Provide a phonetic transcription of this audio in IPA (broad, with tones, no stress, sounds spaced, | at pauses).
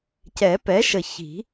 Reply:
c ɛ˨˩˦ p ɛ˩˥ ʃ ə˨˩ ç i̤˨˩˦